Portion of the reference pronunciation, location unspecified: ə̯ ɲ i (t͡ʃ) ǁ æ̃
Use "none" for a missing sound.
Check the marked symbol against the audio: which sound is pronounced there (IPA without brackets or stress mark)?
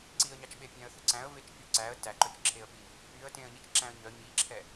t͡ʃ